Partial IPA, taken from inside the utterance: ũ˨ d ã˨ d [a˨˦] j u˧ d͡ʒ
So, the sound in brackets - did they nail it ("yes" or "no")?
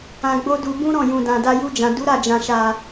no